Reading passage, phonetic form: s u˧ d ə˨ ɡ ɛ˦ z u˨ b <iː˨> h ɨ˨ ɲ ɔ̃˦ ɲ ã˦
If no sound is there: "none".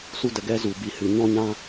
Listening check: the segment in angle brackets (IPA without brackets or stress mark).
i˨